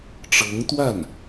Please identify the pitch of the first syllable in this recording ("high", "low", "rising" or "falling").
rising